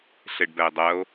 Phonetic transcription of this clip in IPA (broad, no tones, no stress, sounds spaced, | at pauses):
ɬ e ɖ b ɛ e̯ dˤ ɜ o̯